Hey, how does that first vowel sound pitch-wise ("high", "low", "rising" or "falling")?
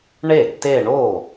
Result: falling